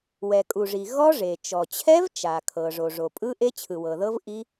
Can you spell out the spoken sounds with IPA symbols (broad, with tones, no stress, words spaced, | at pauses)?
wɛ˩kʼu˩ʐi˩ ɣɔ˦˥ʐe˩ t͡ʃɔ˩t͡ɕʰɛ˦˥vt͡ʃa˩ kʰɤ˩ ʐo˩ʐo˩pʼɯ˦˥ ʔe˦˥t͡ɕʰɯ˩wɤ˩ðɤ˦˥v ʔi˦˥